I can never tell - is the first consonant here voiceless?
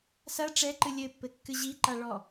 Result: yes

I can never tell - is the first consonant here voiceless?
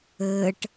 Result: yes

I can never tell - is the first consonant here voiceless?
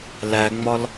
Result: no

